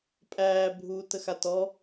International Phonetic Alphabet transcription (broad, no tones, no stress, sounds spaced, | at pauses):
pʼ æː bʱ uː t ə x a t ɔ